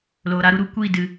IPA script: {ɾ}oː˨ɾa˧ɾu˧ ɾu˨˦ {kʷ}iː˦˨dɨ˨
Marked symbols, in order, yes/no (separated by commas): no, yes